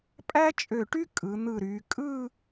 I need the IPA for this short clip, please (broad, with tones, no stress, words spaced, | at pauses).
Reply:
pʼæ˥t͡ʃʼø˧˩ʈy˥ kʼɯ˩˧n̪ɯ˧˩ɾy˩˧ kʼɯ˥˧